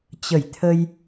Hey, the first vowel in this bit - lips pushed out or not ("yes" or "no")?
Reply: no